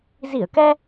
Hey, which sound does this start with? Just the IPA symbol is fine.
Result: z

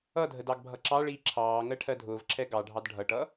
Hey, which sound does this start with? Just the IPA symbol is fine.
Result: ʌ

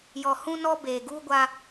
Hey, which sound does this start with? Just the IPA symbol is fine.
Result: j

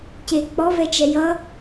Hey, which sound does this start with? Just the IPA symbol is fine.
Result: c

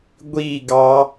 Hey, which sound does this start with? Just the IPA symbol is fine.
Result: ɡʷ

